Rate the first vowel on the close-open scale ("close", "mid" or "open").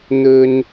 mid